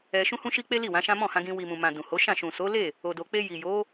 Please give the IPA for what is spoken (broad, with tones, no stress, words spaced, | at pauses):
ɛ˧ ʃũ˦hũ˦ʃi˦ k͡pe˦li˦˨wã˨˦ʃã˦ mɔ̃˦˨hã˧ɡĩ˧ wi˨mũ˨mã˨ dũ˨ho˨˦ʃã˦˨ ʃũ˨so˨˦le˦˨ | o˧do˧ k͡pe˧ji˨jo˨˦